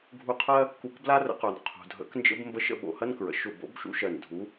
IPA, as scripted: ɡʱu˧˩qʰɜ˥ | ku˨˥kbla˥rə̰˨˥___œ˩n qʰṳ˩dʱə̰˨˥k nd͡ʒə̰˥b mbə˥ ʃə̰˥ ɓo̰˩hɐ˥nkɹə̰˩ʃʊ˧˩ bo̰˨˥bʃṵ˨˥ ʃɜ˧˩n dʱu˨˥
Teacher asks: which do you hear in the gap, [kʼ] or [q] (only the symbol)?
q